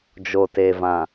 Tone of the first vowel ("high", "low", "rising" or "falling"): low